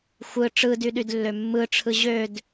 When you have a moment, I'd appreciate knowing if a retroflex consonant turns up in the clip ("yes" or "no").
yes